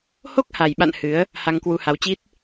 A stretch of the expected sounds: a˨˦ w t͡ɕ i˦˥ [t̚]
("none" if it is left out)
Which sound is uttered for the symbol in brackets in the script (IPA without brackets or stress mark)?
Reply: t̚